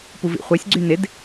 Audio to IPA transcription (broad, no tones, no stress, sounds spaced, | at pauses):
p u v ḭ χʷ ɛ sʲ ɡ͡ǀ y n ɪ d